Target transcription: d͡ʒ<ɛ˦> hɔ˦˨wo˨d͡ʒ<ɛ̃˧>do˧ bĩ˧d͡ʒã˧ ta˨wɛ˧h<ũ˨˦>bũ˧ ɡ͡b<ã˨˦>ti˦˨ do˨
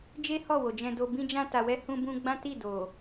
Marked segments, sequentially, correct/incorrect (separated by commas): incorrect, correct, incorrect, incorrect